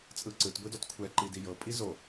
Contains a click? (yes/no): yes